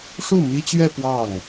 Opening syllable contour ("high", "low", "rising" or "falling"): falling